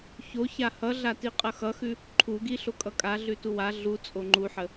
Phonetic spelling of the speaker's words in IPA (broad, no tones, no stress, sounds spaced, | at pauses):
ç o ç a h ʌ ɮ a t i qʼ ʌ x ʌ x ʉ | ǃʰ u ɡ i ɬ o kʼ ʌ kʼ a ɮ ʉ t u w a ɮ u t͡sʼ o ŋ͡ǃ u ħ ə